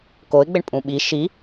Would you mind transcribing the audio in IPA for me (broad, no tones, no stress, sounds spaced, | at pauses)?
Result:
k o ɪ̯ ɡ͡b ɪ ɳ pʼ ũ ɓ i ʃ i